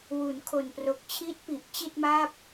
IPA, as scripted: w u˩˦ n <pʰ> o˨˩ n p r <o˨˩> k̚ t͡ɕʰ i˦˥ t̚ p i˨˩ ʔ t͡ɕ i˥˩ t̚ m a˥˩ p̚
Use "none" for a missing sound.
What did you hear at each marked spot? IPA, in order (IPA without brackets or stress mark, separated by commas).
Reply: kʰ, o˨˩